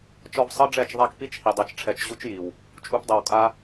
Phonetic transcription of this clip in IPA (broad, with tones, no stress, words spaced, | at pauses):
t͡ʃɔ˧vsˤɤ˦ɖ͡ʐɛ˦˨t͡ʃ ðˤa˦kpi˦t͡ʃhi˨ dˤɤ˧t͡ʃʈ͡ʂʰɛ˧t͡ʃ ʑu˦t͡ʃji˨w | t͡ʃʼu˧pdˤɤ˨w kʼa˧